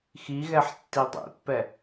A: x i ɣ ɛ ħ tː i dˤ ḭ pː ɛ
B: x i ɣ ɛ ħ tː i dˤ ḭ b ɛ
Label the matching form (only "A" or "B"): A